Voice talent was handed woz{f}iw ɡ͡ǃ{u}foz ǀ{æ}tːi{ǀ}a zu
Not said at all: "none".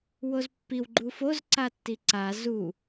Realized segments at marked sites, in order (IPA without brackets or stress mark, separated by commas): pː, u, a, ǀ